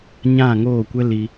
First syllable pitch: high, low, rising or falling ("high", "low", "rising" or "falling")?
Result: falling